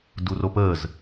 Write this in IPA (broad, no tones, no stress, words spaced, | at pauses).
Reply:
duropəːz